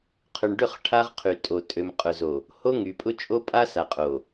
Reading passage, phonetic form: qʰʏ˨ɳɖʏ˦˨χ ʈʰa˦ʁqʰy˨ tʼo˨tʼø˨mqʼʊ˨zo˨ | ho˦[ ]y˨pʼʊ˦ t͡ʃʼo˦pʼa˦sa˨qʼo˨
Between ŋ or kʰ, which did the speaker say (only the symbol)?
ŋ